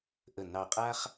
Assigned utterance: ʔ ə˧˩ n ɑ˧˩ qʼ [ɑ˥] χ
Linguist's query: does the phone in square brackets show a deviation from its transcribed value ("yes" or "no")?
yes